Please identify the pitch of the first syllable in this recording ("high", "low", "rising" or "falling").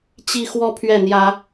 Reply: falling